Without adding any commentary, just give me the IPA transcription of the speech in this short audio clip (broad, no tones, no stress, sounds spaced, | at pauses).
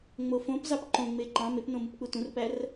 ŋ͡m o f õ p z ɑ p ǃ õ ŋ͡m e ǃ ɑ̃ m e p n õ m ɯ p k͡p u t ũ r p æ r